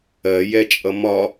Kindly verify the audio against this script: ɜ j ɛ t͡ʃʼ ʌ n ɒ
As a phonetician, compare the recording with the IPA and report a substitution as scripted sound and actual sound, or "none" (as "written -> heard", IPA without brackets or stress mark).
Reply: n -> m